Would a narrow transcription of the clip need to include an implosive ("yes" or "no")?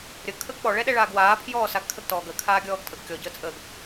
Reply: yes